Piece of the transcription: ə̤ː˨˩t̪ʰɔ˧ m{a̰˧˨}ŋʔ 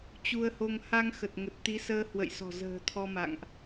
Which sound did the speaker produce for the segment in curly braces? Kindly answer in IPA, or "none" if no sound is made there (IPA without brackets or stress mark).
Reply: a̰˧˨